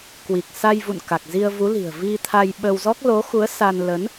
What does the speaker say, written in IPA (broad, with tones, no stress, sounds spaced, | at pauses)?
k w i˨˩ k̚ s a˧ j v ṵ˧˨ n k a˨˩ k̚ z i˧ ə̯ v u˨˦ l i̤˨˩ ə̯ v i˧ t̪ʰ a˧ j ɓ ə˧ w z ɔ˦˥ k̚ l o˨˦ x u˨˦ ə̯ s a˧ n l ə˨˦ n